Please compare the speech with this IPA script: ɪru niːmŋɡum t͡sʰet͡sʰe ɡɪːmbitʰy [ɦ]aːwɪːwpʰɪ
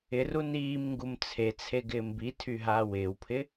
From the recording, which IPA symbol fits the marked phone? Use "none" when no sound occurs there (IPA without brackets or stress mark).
ɦ